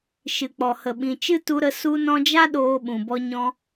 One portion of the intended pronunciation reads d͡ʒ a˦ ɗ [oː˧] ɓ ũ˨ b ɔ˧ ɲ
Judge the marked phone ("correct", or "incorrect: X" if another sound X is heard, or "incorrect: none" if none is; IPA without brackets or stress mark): correct